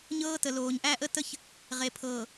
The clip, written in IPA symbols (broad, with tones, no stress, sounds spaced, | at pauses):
ɲ ɤː˦ t ə˨ l oː˨ ɲ ʔ æ˦ ʔ ə˦ t ə˦ ç | ʁ e˨ pʰ ɤː˨